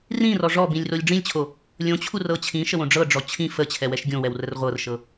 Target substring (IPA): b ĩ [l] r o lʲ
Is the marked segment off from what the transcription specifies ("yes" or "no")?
yes